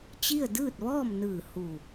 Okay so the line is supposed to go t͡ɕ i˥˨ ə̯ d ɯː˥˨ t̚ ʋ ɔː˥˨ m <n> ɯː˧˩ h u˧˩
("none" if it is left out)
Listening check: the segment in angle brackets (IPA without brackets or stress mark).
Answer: n